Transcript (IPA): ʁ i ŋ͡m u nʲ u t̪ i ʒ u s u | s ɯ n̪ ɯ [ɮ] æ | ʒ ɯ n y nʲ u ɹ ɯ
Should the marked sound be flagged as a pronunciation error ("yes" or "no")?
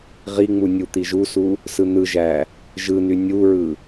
yes